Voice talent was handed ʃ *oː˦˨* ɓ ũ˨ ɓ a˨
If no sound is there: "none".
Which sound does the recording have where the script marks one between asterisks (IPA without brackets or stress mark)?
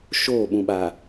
oː˦˨